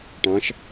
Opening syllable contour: rising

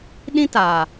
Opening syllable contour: high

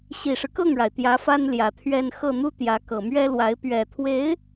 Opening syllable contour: low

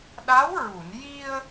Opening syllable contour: rising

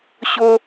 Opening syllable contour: high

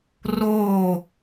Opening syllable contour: falling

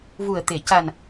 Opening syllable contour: low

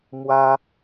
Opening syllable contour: high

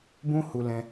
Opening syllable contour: high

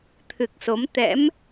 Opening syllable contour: low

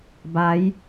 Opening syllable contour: rising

